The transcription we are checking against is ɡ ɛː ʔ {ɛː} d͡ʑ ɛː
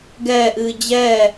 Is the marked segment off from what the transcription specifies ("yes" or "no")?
yes